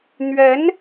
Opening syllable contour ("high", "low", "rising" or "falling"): rising